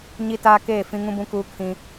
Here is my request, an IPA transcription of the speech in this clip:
ɲ i˦ t aː˦ k eː˦˨ f ĩ˦ ŋ ũ˦ b ũ˦ k uː˦ kʰ ĩ˦

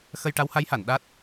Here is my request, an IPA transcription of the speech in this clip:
x ə˧ j ʈ a˧˥ w h a˧˥ j h a˨˩˨ n ɗ a˦˥ t̚

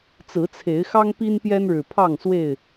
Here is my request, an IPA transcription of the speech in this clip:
t͡s ɹ̩˨˦ t͡sʰ e˨˦ ɪ̯ x ɑ˦ ŋ p i˦ n p j ɛ˦ n ɻ ɻ̩˨˩ pʰ ɑ˥˨ ŋ s w e˥˨ ɪ̯

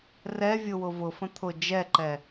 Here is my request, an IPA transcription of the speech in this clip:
r ɛ vʲ ʊ w ʊ v ʊ f ə̃ t̪ʰ ʊ d͡ʒ ɛ ǃ ɛ

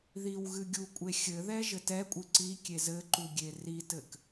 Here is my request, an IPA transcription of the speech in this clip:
ð i w ɣ ɨ ɡʲ u kʷʼ e xʲ ɘ ð ɛ ʒ ɘ t ɛ kʷʼ ɨ ǀ i kʲ e z ɘ ǃ u ɡʲ e r i t ɘ k

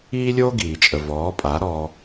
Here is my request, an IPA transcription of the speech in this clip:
iː˦ lʲ oː˦ ɡ iː˨ t͡ʃʼ ə˨ v ɔː˨˦ pʼ a˨˦ ɾ ɔː˧

